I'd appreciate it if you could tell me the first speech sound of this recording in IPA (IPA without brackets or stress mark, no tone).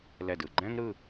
l